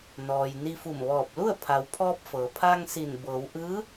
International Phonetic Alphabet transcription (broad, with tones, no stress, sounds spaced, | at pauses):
n ɔː˩ j n i˧ f u˧˩ m ʋ ɔː˧˩ p̚ l u˥˨ ə̯ pʰ a˩ w pʰ ɔː˧ p̚ f ɤː˩ pʰ aː˧ ŋ s i˧˩ n b ɤː˩˧ w ʔ ɯː˧˥